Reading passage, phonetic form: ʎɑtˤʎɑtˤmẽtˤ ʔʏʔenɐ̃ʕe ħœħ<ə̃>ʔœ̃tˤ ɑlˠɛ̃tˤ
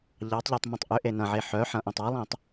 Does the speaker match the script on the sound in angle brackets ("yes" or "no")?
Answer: no